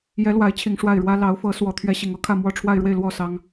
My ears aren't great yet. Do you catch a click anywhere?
no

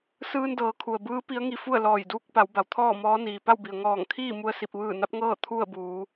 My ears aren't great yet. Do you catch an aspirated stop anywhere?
yes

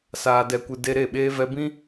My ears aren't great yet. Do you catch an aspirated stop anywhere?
no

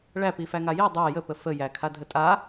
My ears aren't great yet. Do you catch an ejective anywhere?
yes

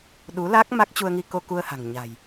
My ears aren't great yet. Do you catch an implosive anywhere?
yes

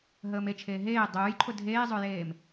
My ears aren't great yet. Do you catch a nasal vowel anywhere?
no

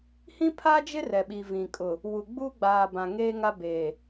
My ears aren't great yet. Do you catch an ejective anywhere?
yes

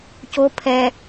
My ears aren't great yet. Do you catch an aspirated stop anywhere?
yes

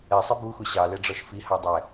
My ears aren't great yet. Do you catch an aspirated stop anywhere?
no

